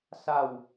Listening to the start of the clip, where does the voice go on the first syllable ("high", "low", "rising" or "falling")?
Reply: falling